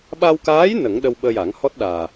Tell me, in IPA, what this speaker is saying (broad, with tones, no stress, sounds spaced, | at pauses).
ɓ a˧ w k aː˧˥ j n ə˨˩˦ ŋ ɗ ə˧ w ɓ əː˧ j a˨˩˦ ŋ h ɔ˦˥ t̚ ɗ aː˨˩